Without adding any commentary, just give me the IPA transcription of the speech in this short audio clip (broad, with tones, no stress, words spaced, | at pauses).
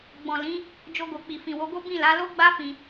ɡ͡bɔ̃˨lĩ˨˦ | d͡ʒo˧ɡo˨k͡pi˨ fĩ˨wo˨˦ɡo˦ bĩ˦˨la˨˦ lo˦ɡ͡ba˦fĩ˧